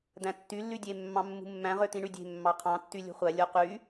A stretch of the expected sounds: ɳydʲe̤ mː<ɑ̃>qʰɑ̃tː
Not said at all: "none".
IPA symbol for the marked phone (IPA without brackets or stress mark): ɑ